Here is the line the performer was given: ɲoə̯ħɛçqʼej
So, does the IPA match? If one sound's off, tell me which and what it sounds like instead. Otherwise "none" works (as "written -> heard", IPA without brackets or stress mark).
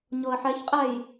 e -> ɛ